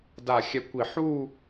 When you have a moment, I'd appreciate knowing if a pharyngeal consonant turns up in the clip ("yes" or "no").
yes